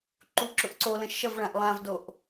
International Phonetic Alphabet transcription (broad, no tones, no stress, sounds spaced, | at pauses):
ǃ u ǁ ʊ ʔ ǀ o l ə̃ ʃ ʌ v ɭ ã ʔ lˠ ã v d o ʔ